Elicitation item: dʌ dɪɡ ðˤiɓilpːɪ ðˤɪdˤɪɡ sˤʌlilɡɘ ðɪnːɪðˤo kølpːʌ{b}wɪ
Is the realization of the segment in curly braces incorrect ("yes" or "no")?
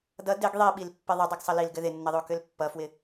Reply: yes